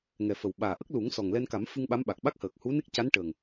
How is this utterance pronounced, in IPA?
ŋɛ˨˩fə˨˩wɓaː˨˩ʔə˦˥k̚ lu˨˩˦ŋsɔ˨˩ŋ lɛ˧nka˨˩˦mfɨ˧ŋ ɓa˧˥mɓa˨˩k̚ ɓa˦˥k̚həː˨˩k̚ hu˧˥ne˦˥k̚ ca˧˥nʈəː˨˩ŋ

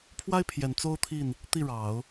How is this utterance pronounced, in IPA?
pʰwa˥ɪ̯pʰjɛ˨˩n t͡so˥ʊ̯t̪ʰi˥˩n | t̪i˥˩ɻɑ˨˩˦ʊ̯

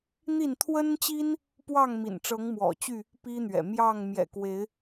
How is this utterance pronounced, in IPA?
n̪i˥˨n t̪ʰwə˦nt͡ɕi˦n | pwɑ˥˨ŋmḭ˨˩nʈ͡ʂɤ˨˦ŋ mwɔ̰˨˩t͡ɕy˥˨ | pi˦n̪ɥɛ̰˨˩ mjɑ˥˨ŋ mjɛ̰˨˩kwe˨˦ɪ̯

